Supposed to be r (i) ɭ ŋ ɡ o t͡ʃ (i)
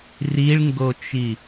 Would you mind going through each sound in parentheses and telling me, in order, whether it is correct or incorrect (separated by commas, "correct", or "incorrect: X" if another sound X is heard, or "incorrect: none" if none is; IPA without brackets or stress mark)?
correct, correct